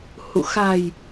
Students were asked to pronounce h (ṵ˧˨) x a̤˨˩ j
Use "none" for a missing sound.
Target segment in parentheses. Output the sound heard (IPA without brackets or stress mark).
ṵ˧˨